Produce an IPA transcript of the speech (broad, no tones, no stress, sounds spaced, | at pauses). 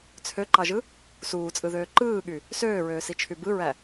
t͡sʰ ø ǃ ɑ ʒ ɯ | s uː t͡sʼ ɯ ð øː ǃ ɯː ɠ y | s øː ɹ øː s i t͡ʃʰ y b ɯ ɹ æ